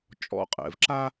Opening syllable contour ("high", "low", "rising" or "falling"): low